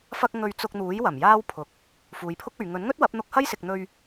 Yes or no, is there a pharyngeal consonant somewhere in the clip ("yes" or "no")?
no